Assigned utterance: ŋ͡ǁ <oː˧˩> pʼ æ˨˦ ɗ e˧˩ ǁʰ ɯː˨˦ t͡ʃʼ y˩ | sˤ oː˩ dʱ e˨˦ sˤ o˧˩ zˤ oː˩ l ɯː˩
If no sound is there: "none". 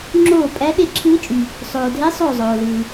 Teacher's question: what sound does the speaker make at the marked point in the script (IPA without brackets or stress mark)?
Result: oː˧˩